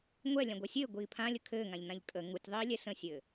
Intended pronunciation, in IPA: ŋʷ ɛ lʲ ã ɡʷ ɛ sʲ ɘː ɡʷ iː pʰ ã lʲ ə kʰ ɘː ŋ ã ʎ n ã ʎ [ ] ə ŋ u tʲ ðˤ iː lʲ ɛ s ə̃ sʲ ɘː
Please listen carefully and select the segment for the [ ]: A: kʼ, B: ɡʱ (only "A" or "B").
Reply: A